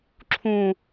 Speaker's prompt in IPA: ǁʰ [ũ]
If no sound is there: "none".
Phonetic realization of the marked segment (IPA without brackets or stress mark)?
ũ